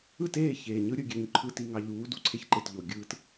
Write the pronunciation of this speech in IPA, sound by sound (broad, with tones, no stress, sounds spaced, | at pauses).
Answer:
ɯ˦˨ t eː˦˨ ç eː˨ ɲ ɯ˦ ɾʲ ɯ˨ ɡʲ ø˨ ɲ ǃʰ ɯ˨ t i˨ ŋ ɑ˨ ʎ uː˨˦ d u˨ ǀʰ e˦ ç ǃ e˨ t ʎ o˨ ɡʲ ɯː˦ t